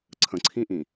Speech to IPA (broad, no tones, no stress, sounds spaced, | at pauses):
ǀʰ ə̃ ǀʰ ĩ ʔ ĩ